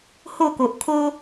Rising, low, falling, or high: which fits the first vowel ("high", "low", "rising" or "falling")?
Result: falling